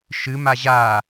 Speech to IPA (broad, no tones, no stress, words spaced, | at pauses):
ʃɨma ʑa